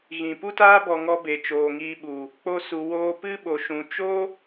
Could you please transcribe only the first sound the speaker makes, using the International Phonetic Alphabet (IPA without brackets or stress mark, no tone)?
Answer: ɣ